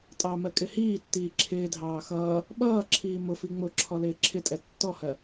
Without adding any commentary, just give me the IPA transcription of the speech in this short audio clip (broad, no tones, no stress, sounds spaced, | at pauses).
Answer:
tʼ ɑ m ɜ kʼ ɪ h iː tː iː ǁʰ ɪː dʱ ɑː x ʌː | ɓ ʌː ǁʰ iː m ʊ f i ŋ͡m ʊ ǁʰ ɔ l ɪː ǁʰ ɪ tʼ ɛ tː ɔ h ɜ